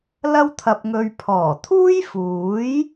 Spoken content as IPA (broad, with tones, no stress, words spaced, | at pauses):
lɐ˥wt̪ʰɐ˧p̚ŋɵ˧ɥ pʰɔː˨˩t̪ʰuː˥jfuː˨˥j